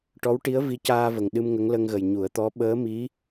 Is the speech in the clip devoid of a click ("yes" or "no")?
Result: yes